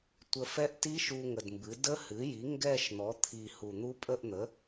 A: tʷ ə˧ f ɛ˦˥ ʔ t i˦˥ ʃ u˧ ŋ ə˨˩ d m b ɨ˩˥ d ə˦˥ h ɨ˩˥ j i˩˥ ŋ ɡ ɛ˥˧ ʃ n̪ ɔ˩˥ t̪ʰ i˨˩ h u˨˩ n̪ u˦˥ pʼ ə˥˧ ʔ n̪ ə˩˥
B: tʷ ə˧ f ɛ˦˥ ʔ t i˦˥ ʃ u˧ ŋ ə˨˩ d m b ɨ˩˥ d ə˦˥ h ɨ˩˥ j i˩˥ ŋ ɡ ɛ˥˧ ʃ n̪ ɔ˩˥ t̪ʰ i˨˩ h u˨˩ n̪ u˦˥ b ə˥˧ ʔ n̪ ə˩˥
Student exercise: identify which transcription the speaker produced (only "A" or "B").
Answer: A